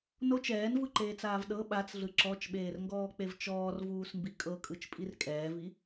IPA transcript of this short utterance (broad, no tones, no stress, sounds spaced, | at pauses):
n o t͡ʃ ɛː n v ɯ ǃ eː t͡s aː v ɗ ɤ ɓ a t͡s ɮ ɯ ǁ ɔ t͡ʃ ɓ eː r ŋ ɡ ɔː k͡p e v t͡ʃ ɔː r v uː s m b i kʼ ɤ kʼ ɯ t͡ʃ pʼ i r kʼ ɛː v i